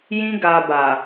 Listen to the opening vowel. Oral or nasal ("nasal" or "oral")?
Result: nasal